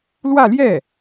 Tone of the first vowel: falling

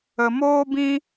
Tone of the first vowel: low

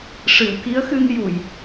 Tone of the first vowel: low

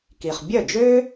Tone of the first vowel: low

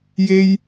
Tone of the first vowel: high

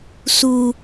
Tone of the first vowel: high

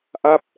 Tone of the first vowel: falling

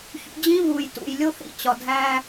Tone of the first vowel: rising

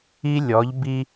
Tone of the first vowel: high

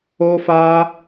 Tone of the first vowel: high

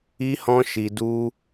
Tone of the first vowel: high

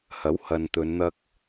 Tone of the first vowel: rising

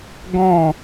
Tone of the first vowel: falling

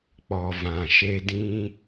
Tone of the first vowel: low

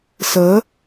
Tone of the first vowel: rising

